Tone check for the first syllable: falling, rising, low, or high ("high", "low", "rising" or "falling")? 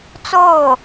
falling